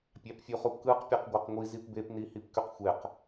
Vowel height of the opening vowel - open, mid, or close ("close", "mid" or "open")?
open